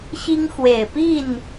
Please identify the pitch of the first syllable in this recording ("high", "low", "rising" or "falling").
high